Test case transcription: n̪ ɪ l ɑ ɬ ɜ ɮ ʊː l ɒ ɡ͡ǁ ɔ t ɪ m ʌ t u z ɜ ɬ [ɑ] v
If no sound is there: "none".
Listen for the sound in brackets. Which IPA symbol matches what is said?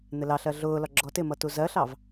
ɑ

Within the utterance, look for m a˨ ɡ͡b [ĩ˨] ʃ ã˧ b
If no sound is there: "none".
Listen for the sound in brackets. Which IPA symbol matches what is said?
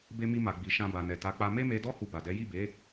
i˨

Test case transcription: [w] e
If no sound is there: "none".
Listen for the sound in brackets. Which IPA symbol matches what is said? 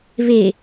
β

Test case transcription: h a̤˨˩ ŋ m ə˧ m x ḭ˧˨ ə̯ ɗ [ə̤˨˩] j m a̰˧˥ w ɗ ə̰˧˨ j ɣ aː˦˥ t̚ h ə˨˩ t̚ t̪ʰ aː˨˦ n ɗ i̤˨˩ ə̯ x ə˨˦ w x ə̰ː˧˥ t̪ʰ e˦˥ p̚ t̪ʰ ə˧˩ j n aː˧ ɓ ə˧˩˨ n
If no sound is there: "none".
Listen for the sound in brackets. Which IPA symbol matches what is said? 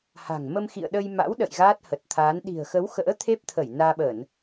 ə˧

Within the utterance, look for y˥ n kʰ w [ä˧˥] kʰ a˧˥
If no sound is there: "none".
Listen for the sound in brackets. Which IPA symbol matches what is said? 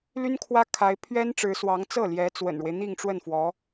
ä˥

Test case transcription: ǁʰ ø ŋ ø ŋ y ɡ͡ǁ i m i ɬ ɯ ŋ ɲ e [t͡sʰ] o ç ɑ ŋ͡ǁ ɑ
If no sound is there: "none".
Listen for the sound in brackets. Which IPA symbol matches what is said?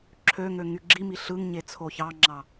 t͡sʰ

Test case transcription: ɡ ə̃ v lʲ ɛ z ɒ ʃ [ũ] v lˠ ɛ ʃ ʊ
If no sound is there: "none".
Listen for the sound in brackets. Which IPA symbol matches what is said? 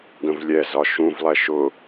ũ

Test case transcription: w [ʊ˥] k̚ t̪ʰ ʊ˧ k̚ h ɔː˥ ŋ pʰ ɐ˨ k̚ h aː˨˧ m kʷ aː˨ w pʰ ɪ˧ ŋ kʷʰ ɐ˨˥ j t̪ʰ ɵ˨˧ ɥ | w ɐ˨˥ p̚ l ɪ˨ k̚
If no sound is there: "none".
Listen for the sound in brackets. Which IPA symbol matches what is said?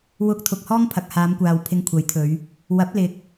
ʊ˥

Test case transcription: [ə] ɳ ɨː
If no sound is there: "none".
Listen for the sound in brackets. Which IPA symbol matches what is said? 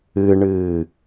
ɨ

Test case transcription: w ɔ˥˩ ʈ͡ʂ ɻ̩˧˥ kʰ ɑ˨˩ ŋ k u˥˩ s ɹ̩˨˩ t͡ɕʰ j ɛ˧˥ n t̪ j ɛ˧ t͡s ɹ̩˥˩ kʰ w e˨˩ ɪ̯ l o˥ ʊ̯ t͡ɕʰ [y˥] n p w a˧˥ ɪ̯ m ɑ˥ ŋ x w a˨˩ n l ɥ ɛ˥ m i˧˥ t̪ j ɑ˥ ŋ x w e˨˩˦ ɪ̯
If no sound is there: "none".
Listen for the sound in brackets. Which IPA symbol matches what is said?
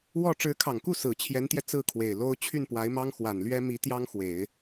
y˥˩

